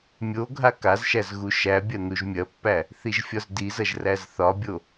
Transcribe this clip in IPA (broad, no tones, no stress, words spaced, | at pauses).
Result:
mʲo ɡʱakazʃæz ɣuʃæbʲɐ nuʒmʲɐpːæ | θiʒfʲɒzdizɐʒ ræzθɒbʲo